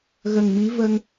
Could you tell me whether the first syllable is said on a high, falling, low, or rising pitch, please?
low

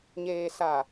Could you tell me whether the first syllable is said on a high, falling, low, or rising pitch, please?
low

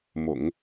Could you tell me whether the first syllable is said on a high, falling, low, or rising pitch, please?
low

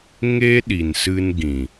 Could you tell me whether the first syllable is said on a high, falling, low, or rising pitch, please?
high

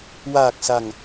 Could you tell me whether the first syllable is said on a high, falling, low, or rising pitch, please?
low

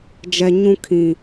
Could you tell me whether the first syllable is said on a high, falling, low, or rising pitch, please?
low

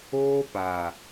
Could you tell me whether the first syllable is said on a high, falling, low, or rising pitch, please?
high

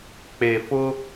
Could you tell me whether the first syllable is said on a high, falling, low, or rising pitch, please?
low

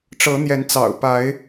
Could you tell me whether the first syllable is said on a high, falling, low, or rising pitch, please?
rising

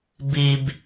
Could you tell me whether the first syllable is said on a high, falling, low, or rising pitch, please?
high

